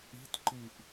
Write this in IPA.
i̤tǃiʔ

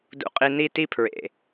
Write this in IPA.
dṵ˦qʼi˦ ni˦ti˦ pʰɹḛ˨

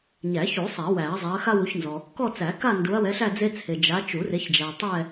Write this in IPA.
ɲæ˨˩˦çu˨˩˦ sˤɛ˨˩˦wæ˨˩˦ɐ̯ zˤa˨˦ɐ̯xa˥wu˨˦çnzɔ˨ | kɔ˥˧t͡sæ˨˩˦ka˥˧ ndu˨˦ɐ̯wɛ˨˦ɬæ˥˧ d͡ze˥t͡sʰe˨ d͡ʒa˨˦t͡ʃu˨˩˦re˨˦çd͡ʒæ˨ tˤɛ˥˧

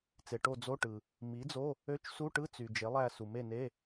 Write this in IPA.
t͡se˩ʈo˦˨ d͡zo˧˥˧ʈɯ˩ | mi˩˥d͡zo˧˥˧ | ø˧˥˧t͡ʃsu˧˥˧ʈɯ˧˥˧ t͡sy˩ d͡ʒe˩˥lˠæ˦˨ su˩me˦˨ne˧˥˧

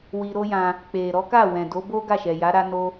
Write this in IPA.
wi˧ɾo˦jã˧ | k͡pe˨ ɾɔ˨˦ka˦˨ wɛ̃˨do˨˦bo˦ ɡa˦˨ʃɛ˨ ja˨˦ ɾa˦ no˦

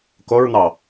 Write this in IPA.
koɹn̪ɑ

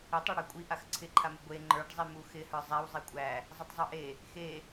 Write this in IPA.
ɪtˤeɽa kʷʼi ʔaxǀʰɪǃʰamɪ ɡʷe ŋ͡ǃə˞ɖzˤi muxɪhə˞ zˤæw zˤikʷʼæ | zˤɪtˤzˤə˞ʔe | xe

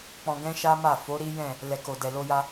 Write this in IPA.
k͡pɔ̃˧ɡɛ̃˦ʃa˦ma˦˨ fo˨˦ ɾi˦jɛ̃˦˨ | lɛ˨ko˨dɛ˨ lo˧ja˧

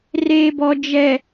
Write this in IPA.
reː˨bɔ˨ d͡ʒɛ˨

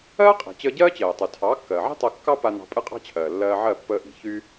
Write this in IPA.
ɜː˥qʼi̤˩t͡ɕəː˧ ɟɜː˥t͡ɕɜː˩tˤy˩ tʰɑː˩˥kːɜː˩ʕi̤˥ tˤɜ˧ kːɑ˥pa˧ nɑ̤˧pʼɨ˥qʼɑ̤˥t͡ɕʰɜː˩ lːɜː˧ ʕɜ˥˩pːəː˧ʔi̤˩ çy˥

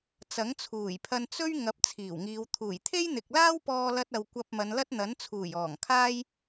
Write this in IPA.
t͡sɐ˨˥ŋt͡sʰuː˨˩jpʰɐ˧n t͡sɵ˥ɥ ŋɐ˨˥p̚ t͡sʰiː˨˩wŋiː˨˧w t̪ʰuː˨˩jt̪ʰe˥j n̪ɪ˨k̚laː˥wpɔː˧lɐ˧t̚ ɐ˨wkʷɐ˧p̚ mɐ˨˧nlɐ˥t̚n̪ɐ˨˥nt͡sʰuː˨˩j ɔː˨˩ŋkʰaː˥j

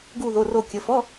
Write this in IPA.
ɡu˥˧ðo˧˥˧ro˥˧ kʲə˧˥˧ fɔ˧˥˧

